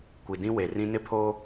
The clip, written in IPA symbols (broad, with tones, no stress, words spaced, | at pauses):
kʷi˨dĩ˦we˨rĩ˦ nɪ˦pʰo˦